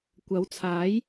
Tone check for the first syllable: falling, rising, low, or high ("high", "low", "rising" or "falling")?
rising